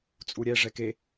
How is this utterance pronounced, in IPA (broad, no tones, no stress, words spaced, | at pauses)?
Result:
t͡sʼuɾʲɛ ʐɛke